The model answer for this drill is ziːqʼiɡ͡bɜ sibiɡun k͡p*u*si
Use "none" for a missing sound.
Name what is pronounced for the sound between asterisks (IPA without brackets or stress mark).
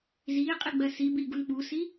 u